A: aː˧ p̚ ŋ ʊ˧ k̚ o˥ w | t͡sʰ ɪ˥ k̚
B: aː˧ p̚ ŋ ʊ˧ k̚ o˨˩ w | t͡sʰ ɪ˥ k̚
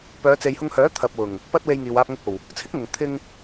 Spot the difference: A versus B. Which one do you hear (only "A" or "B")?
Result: B